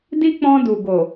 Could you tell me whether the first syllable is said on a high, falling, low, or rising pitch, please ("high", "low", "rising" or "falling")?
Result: high